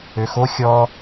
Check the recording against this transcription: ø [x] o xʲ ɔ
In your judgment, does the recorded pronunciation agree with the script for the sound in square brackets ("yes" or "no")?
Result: yes